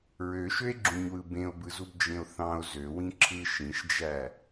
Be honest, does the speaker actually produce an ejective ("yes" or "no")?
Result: no